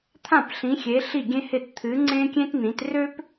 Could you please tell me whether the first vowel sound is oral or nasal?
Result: nasal